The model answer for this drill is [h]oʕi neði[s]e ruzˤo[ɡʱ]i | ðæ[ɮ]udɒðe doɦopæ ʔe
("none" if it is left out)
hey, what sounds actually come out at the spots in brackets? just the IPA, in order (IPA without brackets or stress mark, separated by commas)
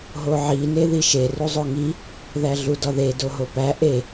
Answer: ɦ, ʃ, ŋ, ɮ